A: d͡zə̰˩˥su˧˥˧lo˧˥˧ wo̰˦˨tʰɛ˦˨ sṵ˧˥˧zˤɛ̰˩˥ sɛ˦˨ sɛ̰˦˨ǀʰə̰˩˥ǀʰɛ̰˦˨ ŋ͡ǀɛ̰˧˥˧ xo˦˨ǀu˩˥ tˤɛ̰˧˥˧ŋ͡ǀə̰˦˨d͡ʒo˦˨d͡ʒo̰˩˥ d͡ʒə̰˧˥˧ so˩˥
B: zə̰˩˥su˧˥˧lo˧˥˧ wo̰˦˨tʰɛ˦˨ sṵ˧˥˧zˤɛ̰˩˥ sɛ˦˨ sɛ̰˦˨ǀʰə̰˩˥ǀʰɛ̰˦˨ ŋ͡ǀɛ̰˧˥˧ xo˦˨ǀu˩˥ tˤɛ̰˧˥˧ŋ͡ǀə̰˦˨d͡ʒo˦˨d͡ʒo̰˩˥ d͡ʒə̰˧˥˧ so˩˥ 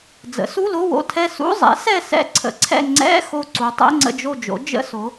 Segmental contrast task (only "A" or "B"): A